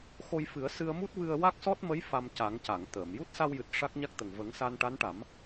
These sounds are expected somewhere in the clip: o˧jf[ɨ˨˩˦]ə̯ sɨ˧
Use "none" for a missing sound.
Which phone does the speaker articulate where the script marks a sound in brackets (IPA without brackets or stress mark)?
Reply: ɨ˨˩˦